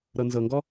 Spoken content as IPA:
ɾ ɤ n z ɤ ŋ ɡ ɔ

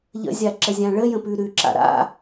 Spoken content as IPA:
ʎ ə̰ zʲ a ǁ ə zʲ ã ɭ ə j ə̃ p ʉ ɾ ʉ ǁ a̰ ɾ a̰

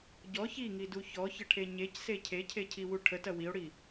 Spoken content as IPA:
ɟ ɔ ç i ŋ i d u ç ɔ ç ə ʈʰ e ɲ e c s e cʰ e cʰ e cʰ i w u ʈʰ ə t ɐ w i o̯ ɽ i

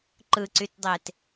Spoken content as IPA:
ǃ ɯ ǀ y t dˤ e t

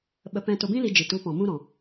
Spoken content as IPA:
ɓ ə˧ p ɛ̃˧ t o˧ b ĩ˦ l i˧ d͡ʒ i˨ t u˨˦ p ɔ̃˨ m ũ˧ ɾ ɔ̃˨

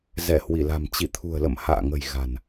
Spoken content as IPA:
z ɛ˧˩ h w i˧˩ l a̤˨˩ m t͡ɕ i˧˩ t̪ʰ ṳ˨˩ ə̯ l ə̰˧˨ m h a̰ː˧˨ ŋ ə̤˨˩ j ɣ a̤˨˩ n

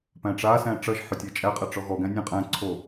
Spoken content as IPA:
p æ̃ ʈ͡ʂ a s æ̃ ʈ͡ʂ ʌ ʒ ħ ʏ tʲ ɛ t͡ʃʼ æ qʼ æ ʈ͡ʂ ɔ ɣ ɔ ɡ æ̃ nʲ ã qʼ æ̃ ǀʰ o

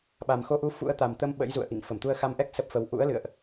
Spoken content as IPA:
ɓ a˨˩ m x o˧ ʔ u˧ f ṵ˧˥ ə̯ t̪ a˨˩ m t̪ ə˧ m ɓ ə̰˧˥ j z ṵ˧˨ ə̯ ʔ ḭ˧˨ ŋ f ə˧˩ m t̪ u˧ ə̯ x a˧ m ʔ ɛ˦˥ k̚ s ə˦˥ p̚ f ə˧ w ʔ ṵ˧˥ ə̯ l ɨ̰˧˨ ə̯ ʔ

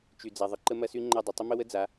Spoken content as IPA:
t͡ʃ y˨ d͡z a˨ ðˤ ə˨ ǃ ə˦ m ɐ˦ s y˦ ŋ͡ǃ ɐ˦˨ dˤ ə˨ tˤ ə˦ m ə˦ w ə˦ d͡z a˨˦

